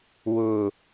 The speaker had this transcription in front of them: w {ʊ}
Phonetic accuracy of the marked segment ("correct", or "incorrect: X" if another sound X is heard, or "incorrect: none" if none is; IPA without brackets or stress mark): correct